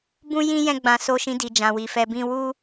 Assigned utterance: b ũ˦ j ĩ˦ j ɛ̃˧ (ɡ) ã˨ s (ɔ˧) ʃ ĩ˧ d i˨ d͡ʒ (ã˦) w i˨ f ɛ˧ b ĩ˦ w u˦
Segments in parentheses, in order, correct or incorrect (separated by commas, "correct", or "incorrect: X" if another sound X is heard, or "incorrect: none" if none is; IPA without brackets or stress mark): incorrect: ɡ͡b, incorrect: o˧, incorrect: ã˨